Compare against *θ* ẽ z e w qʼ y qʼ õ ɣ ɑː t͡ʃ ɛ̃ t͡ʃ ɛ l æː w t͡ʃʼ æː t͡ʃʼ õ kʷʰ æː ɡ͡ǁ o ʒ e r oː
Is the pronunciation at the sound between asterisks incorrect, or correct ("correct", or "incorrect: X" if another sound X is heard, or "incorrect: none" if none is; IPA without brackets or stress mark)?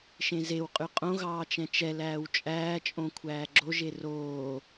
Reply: incorrect: ʃ